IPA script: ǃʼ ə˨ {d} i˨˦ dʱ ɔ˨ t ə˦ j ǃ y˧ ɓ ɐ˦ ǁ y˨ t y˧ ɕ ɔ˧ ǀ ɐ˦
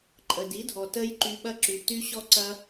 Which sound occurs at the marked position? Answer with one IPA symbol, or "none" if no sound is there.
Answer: d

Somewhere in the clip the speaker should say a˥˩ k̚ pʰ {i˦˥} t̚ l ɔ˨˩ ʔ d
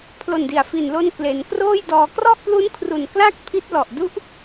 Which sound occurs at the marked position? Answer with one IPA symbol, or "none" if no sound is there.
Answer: i˦˥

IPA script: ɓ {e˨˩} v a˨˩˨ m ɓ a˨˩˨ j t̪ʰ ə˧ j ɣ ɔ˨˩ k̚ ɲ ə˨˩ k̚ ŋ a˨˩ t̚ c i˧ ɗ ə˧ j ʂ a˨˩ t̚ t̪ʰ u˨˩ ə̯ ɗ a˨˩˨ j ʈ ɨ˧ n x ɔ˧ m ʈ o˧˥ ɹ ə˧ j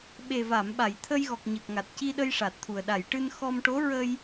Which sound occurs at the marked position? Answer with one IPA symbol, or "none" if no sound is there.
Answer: e˨˩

